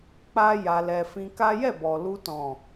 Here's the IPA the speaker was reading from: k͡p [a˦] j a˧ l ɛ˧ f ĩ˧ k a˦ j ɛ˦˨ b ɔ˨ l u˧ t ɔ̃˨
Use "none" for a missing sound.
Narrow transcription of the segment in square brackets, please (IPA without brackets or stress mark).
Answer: a˦